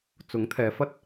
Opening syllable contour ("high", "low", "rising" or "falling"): rising